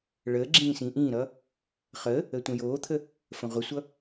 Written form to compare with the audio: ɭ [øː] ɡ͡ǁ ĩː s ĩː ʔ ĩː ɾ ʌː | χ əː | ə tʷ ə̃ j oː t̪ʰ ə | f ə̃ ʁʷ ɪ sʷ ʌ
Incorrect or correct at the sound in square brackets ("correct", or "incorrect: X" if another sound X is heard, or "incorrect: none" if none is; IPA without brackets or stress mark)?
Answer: incorrect: əː